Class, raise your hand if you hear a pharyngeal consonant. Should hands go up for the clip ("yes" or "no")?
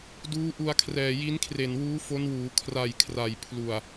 no